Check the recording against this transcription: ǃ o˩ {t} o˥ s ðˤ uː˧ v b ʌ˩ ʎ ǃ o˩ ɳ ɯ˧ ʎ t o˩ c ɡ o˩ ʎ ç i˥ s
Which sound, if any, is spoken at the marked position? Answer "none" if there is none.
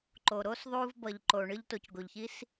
ɾ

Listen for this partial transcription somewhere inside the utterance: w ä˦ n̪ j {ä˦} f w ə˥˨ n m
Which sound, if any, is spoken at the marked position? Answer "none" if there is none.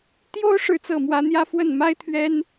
ä˦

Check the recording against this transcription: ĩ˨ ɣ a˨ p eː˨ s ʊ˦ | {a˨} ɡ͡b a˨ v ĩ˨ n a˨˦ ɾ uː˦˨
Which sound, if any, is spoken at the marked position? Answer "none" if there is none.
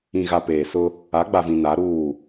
a˨˦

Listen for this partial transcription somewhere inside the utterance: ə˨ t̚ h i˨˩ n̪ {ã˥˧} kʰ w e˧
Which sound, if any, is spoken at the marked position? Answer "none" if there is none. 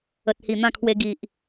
ã˥˧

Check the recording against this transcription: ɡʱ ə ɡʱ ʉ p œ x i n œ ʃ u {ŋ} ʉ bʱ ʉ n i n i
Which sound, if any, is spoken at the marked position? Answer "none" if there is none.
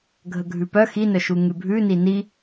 ŋ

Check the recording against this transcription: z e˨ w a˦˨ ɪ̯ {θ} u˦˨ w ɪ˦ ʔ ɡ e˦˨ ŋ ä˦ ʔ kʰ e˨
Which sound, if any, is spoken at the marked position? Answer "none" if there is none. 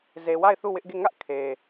θ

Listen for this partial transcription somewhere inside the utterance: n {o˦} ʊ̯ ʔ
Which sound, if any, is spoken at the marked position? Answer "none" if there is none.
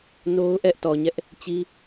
o˦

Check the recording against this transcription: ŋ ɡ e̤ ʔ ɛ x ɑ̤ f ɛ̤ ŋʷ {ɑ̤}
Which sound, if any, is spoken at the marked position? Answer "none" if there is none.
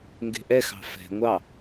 ɑ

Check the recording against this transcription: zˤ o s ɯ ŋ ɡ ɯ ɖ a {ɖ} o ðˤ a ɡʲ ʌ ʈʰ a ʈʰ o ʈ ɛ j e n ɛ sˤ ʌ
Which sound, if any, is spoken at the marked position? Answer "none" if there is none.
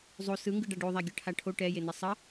ɖ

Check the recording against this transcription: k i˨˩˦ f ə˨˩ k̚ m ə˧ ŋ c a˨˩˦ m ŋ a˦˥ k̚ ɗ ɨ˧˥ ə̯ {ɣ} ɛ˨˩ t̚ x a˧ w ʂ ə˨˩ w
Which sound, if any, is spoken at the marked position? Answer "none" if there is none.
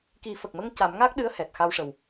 h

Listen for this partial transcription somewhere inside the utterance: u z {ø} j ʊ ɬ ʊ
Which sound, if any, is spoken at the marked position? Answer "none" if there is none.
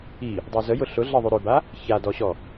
ə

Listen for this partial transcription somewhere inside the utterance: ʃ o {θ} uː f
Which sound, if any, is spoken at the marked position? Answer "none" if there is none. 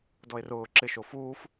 f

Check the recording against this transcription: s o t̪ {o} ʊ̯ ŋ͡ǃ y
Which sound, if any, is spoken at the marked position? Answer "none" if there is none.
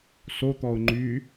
ɔ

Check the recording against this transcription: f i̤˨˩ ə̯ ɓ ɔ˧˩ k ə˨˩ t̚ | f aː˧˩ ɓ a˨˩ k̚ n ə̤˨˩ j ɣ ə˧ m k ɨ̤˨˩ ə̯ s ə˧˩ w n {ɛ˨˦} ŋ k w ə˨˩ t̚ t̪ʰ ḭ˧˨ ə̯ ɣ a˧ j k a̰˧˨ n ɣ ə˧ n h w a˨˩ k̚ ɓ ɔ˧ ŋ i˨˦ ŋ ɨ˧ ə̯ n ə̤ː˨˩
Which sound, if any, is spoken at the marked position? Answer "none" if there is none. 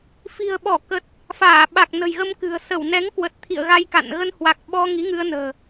ɛ˨˦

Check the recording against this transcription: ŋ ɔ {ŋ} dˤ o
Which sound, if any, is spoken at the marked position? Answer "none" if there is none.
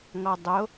none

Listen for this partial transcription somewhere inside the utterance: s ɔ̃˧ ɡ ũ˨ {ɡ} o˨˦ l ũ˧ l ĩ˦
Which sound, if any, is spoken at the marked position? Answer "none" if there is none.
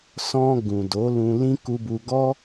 d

